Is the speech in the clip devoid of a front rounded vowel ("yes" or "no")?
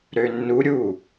no